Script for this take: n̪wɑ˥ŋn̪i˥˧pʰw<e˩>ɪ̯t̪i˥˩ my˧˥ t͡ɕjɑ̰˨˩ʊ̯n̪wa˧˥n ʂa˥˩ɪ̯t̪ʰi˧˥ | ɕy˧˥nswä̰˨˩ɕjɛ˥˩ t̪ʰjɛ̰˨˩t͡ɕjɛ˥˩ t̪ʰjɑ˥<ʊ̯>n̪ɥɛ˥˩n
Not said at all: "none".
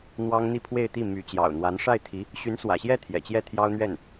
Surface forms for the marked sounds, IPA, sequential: e˥˧, ʊ̯

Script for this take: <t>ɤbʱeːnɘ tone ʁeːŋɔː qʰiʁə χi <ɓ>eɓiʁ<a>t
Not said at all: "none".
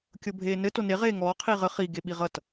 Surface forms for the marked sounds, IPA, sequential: kʲ, ɡ, ʌ

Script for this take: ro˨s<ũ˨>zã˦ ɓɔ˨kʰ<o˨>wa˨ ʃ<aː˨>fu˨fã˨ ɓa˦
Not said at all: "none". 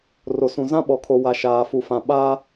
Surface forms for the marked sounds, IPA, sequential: ũ˨, o˨, aː˨

